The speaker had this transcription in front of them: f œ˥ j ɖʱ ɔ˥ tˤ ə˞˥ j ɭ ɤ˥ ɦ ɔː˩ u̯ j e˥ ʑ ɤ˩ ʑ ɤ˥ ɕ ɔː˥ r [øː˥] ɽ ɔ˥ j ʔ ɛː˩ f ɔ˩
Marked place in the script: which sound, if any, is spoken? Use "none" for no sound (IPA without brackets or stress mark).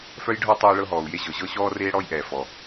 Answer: eː˥